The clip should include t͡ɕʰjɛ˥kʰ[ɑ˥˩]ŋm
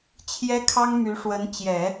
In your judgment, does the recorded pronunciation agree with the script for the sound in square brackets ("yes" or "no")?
no